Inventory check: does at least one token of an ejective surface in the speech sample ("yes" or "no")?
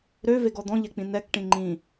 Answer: no